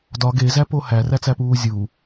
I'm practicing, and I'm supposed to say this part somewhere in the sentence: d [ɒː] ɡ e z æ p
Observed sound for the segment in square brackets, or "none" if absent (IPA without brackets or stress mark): ɒ